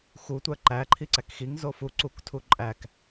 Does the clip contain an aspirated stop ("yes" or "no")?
yes